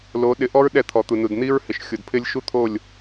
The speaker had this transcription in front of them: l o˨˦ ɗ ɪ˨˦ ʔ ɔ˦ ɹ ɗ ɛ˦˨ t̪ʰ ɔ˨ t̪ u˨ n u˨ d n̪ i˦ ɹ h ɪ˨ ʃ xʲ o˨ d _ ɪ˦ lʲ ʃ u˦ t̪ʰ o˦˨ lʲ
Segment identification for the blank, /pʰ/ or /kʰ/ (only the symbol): pʰ